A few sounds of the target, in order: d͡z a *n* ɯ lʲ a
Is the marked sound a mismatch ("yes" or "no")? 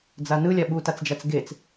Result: no